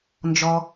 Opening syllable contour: high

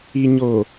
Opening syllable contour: low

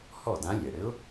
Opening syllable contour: falling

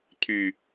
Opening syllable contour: low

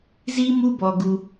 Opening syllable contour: high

